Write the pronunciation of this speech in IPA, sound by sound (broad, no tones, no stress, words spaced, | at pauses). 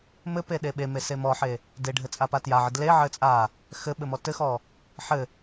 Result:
mɘpe ɗeɓeme semɔħe | deɖʱɘ t͡sʼapatjaʕɘ dleʕɘ t͡sʼa | xɘɓɘ mɔtɘxɔ | ħɘ